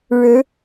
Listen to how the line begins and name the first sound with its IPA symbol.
ɻ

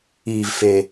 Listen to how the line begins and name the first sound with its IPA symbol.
iː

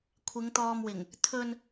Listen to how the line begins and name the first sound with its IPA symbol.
kʷʰ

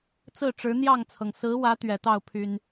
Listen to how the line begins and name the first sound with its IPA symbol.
t͡s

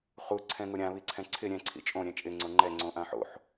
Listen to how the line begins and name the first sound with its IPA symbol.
χ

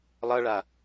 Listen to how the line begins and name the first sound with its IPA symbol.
lˠ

